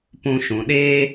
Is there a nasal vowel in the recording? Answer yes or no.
yes